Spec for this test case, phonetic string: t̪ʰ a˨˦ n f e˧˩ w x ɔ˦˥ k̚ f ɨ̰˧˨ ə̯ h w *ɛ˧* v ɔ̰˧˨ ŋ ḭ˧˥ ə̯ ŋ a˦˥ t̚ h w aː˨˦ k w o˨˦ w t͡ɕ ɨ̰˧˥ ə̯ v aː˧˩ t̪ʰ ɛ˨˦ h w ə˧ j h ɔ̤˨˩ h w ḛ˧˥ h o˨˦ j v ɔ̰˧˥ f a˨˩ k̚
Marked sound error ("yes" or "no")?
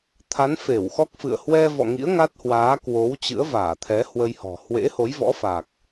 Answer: no